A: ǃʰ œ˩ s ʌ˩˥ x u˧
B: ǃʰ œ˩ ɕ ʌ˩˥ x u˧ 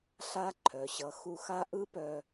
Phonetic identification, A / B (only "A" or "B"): B